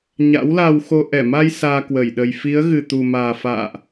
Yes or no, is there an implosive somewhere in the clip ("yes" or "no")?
yes